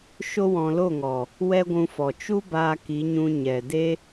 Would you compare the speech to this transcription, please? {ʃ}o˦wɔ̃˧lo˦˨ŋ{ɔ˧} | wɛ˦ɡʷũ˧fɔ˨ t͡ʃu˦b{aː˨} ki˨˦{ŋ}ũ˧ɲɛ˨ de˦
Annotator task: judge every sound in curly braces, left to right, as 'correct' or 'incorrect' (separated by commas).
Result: correct, incorrect, incorrect, incorrect